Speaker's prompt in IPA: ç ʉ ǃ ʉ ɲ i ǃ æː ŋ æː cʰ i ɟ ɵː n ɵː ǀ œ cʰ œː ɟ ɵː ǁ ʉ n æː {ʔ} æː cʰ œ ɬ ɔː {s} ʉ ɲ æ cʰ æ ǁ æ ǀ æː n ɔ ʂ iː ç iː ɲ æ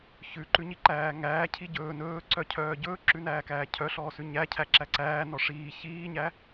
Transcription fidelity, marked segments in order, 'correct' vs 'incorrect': incorrect, correct

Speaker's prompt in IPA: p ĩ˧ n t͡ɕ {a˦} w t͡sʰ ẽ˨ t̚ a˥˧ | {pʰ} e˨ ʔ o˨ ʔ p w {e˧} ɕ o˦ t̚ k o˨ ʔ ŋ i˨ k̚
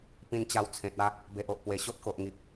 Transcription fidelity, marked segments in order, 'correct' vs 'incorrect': incorrect, incorrect, incorrect

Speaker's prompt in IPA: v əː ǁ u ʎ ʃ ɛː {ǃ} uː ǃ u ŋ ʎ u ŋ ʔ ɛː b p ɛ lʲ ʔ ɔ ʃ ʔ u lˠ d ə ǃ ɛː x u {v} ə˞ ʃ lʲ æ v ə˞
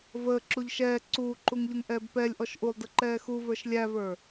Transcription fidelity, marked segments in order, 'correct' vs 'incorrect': incorrect, correct

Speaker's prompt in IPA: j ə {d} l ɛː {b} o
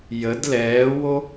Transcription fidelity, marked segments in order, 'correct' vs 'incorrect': correct, incorrect

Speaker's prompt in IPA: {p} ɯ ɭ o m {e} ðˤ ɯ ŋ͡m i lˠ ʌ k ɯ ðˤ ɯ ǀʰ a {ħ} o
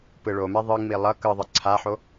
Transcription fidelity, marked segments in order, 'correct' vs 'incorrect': correct, incorrect, correct

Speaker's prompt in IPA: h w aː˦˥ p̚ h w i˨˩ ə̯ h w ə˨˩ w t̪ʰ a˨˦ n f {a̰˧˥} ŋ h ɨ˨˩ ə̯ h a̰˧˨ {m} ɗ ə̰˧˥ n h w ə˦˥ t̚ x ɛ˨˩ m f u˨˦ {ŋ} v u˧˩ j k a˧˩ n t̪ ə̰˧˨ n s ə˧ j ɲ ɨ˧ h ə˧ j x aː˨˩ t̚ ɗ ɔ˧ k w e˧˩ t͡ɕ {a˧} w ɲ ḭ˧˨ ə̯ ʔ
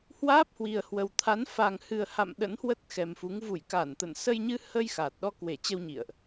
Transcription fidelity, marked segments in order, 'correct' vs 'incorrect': incorrect, correct, correct, incorrect

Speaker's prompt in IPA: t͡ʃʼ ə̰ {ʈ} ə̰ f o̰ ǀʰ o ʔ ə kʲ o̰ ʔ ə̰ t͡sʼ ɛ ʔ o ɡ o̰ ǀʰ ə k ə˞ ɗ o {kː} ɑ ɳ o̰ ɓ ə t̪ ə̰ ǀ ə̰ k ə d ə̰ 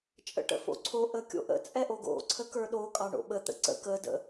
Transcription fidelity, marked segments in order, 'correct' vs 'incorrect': correct, incorrect

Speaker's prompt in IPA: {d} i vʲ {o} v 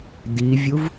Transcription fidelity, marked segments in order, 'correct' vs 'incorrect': correct, incorrect

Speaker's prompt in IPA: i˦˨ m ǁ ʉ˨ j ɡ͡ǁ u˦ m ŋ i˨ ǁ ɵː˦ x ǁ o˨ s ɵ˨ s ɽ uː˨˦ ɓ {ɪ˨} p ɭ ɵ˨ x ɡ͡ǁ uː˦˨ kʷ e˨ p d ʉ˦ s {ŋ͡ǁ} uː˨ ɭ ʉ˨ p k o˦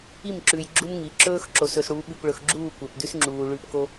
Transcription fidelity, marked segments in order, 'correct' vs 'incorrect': incorrect, correct

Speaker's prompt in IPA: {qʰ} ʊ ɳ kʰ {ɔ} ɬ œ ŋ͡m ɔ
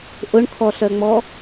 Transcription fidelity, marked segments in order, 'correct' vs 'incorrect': incorrect, correct

